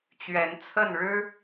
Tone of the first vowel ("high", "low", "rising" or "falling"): rising